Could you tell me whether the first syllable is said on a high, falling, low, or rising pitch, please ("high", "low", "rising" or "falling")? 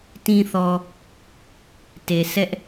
low